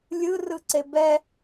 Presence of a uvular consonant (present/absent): absent